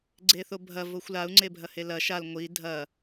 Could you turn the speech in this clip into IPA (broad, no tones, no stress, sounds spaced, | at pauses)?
ɡ͡ǀ e θ o bʱ ɐ v o xʷ l a u̯ ŋ͡ǀ e bʱ ɐ h e l ɐ ʃ a l ŋʷ i dʱ ɐ